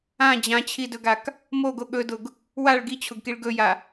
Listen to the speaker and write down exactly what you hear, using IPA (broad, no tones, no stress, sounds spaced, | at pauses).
ã d͡ʑ ã t͡ɕʰ i d ɵ ɡ a k | m o ɡ o ɠ ɵ d ʊ ɡ | w a ɭ ɡ i t͡ɕʰ ʊ ɡ k i ɭ ɡ ɵ j a